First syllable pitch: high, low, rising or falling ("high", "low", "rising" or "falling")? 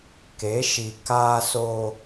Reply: rising